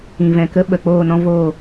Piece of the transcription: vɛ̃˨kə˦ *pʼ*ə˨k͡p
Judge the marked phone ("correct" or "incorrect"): incorrect